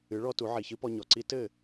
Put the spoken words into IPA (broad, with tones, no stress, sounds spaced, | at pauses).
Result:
ɨ˩˥ ɭ ɔ˧ t u˩˥ ʕ i˩ ç ɨ˥ p ɔ˧ ɲ ɔ˩ ǀ i˥ t ɘ˥˩